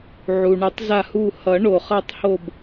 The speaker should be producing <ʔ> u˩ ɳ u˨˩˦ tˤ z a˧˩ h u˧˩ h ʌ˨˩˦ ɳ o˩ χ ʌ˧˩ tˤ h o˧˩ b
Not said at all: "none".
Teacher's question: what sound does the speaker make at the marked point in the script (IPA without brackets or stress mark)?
ʕ